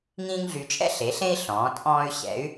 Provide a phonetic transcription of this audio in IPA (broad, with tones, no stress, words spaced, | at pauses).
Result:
ŋĩː˥ŋɮy˧t͡ʃʼɛ̰˥ ɬe˩˥ɬẽ˥i̯ ɬɔ̃ː˩˥ tʼɔ̃ː˥y̯ ɕɛ̰˩˥y̯